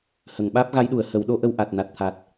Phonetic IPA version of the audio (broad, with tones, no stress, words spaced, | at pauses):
hə˨˩˨ŋ ɓaː˦˥p̚ɣa˧˥jɗu˨˩˨ə̯hə˨˩˦w ɗo˧˥ʔə˧w ʔa˨˩t̚na˨˩t̚t̪ʰa˨˩t̚